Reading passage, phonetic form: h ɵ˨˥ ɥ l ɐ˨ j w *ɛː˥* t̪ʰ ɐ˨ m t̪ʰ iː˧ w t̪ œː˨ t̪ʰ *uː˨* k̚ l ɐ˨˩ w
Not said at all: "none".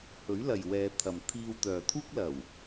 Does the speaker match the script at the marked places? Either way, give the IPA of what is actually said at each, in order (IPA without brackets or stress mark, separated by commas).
ɛː˨˧, uː˥